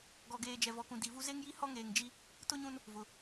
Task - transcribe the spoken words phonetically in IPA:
ɡɔ˨ɡeː˨ d͡ʒɛ˨vɔ˨kũ˨ di˨ vu˦ ze˦ŋji˦ hɔ˦ŋeː˨ŋd͡ʒi˦ | tʊ˦ɲũ˦n | vʊ˨

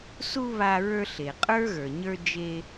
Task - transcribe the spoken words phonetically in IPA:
su˧ βa˧ ɹə˞˧ɬe˩ qʼə˞˥ɣə˞˩ ɲə˞˧ d͡ʒe˧

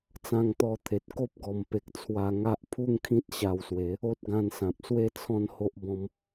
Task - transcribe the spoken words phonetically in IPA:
t͡sã˧ŋt̪ɔ˧t̪ʰe˨t̚ ko˦p̚ɡɔ˨˩mpe˨k̚ t͡sʰwa˧ ŋa˦ʔ pʰu˥˧ŋkʰĩ˦t̚ ɕa˧wswe˨˦ | o˦t̚ ɡã˧nsã˨p̚swe˥˧ t͡sʰɔ̃˦nho˦ʔ bɔ̃˦m

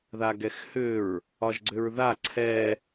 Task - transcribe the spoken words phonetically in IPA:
ðaɡɛxhʏɹ | ɒʒɡ͡ǀʏɹða ǀʰɛ

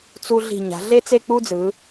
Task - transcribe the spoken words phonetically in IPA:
t͡su˧ ɮi̤˧˩ɲa̤˩˧ ɮe˥t͡se˥˧k͡pu˥d͡zɯ˩˧

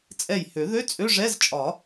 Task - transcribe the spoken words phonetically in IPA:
t͡sʼɛ˧˩jhø˨˩˦ðø˧˥˧ t͡sʼø˧˥˧ʐɛ˧˥˧zt͡ʃʼɒ˨˩˦

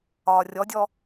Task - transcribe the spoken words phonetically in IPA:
ɒːrʲɔdʲɔ

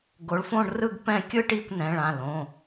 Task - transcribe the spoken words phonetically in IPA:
ɡo˨˦ɭfõ˥˧ɳrɯ˥˧ɡpɛ̃˥˧ kʲɯ˥˧ʈi˥˧kʷnɛ̃˩˧˩ɭ ã˩˧˩lõ˩˧˩

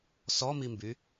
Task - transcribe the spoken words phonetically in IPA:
sɔmimby

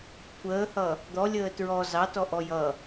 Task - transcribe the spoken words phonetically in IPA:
kʷʰəːhʌ | d̪ɔlʲəː tɹɔ zɑtɔʔɔ jʌ

